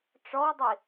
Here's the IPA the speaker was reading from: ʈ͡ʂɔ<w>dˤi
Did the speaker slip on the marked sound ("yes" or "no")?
no